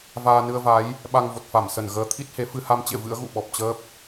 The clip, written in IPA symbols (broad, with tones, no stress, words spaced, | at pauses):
vaː˧nɨ˧ə̯va˨˦j | ɓa˧ŋvo˨˩t̚fa˧˩msə˧˩n ɣəː˨˦t̪ʰi˦˥t̚he˨˦ fɨ˧ ha˧mt͡ɕḛ˧˨ vɨ̰˧˥ə̯ɣṵ˧˨ɓɔ˨˩p̚t͡ɕəː˦˥p̚